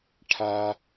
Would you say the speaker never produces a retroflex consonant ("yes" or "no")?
no